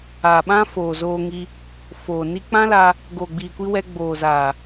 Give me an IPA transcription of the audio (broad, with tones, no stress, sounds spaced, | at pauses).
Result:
aː˨ ɓ ã˦ f oː˨ z oː˧ ŋ i˧ | f oː˨ n i˧ k͡p ã˦ l a˧ | ɡ oː˨ ɡ͡b iː˨ kʷ i˧ w ɛ˧ ɡ͡b oː˨ z a˨